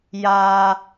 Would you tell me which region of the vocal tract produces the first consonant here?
palate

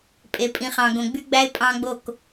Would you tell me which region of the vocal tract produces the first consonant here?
lips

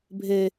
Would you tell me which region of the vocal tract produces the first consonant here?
lips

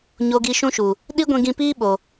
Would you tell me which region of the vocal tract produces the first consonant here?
palate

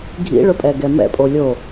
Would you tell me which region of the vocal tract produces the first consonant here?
velum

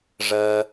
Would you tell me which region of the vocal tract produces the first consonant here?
retroflex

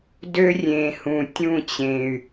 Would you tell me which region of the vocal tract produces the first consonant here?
tongue tip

